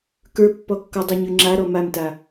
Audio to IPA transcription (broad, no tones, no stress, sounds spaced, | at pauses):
k ə˞ pː ɔ kː ɔ dˤ ə˞ ɲ ʉ ŋ͡ǁ a ɾ ɔ m a m t a